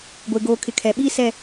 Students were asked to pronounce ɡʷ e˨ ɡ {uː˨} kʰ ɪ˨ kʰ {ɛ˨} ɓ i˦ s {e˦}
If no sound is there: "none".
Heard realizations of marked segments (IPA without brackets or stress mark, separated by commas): oː˨, ɛ˨, ɛ˦